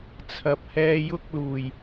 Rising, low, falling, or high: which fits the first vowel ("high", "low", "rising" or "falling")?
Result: low